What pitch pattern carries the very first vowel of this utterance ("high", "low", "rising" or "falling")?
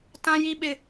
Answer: high